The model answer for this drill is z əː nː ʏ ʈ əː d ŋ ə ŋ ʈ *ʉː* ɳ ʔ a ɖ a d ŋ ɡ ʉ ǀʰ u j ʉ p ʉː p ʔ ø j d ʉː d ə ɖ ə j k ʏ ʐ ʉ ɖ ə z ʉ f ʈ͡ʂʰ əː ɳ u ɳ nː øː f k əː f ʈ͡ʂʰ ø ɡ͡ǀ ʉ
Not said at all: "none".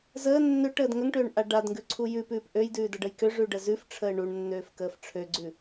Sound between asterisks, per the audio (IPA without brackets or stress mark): øː